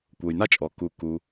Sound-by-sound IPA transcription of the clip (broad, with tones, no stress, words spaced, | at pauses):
kʷɤ˩jna˥t͡ʃʼɔ˩ ku˩ ku˩